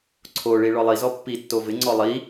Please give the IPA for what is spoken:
ǀʰ o ɭ i ɭ ɔ lˠ i z ɔ pː i tː o v ɪ ŋ͡ǀ ɔ lˠ i

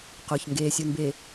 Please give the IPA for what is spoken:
q o˨ ç ŋ ɡ eː˨ sʲ u˨ n b e˨

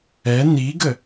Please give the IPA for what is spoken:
ɛ n i ɡ ə

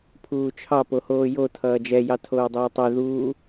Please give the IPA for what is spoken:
pʰ uː t͡ʃʰ ɑ p o h oː j o tʰ ʌː d͡ʒ ɛ j ɑ tʰ oː dˤ ʌː tˤ e ð uː

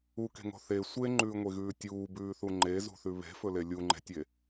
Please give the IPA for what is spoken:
u k e̤ ŋ o̤ θ e sʷ e ŋ͡ǃ ʉː ŋʷ e ɣ ʉː tʲ uː b ʉː θ u ŋ͡ǃ e z ṳ θ ʉ β e̤ f ɵ l e lʲ u ŋ͡ǃ e̤ tʲ e

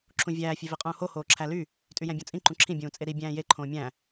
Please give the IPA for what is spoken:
ǁʰ ũ vʲ æː fʲ e v i qʼ ũː h o h oː ǁʰ æ l y | tʼ y j æ̃ bʲ õ t͡sʼ ĩ ǃ ũ ǁʰ ĩ bʲ ũː t͡sʼ e ɾ i bʲ æ̃ː j e ǃʰ õː mʲ æ̃

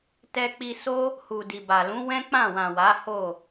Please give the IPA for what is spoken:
t ɛ˧ k͡p i˧ s o˦ | h u˨ d i˨ b a˨ l ũ˨˦ w ɛ̃˦ k͡p ã˦˨ w ã˨ w a˨˦ h o˦˨

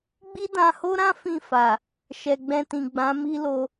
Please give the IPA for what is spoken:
ɡ͡b i˦ d ã˧ h o˦ ɾ ã˦ f ĩ˦˨ f a˨ | ʃ ɛ˨ ɡ͡b ɛ̃˧ t ĩ˨ ɡ͡b ã˨˦ m i˦ l o˧

